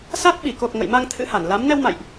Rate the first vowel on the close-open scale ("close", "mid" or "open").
open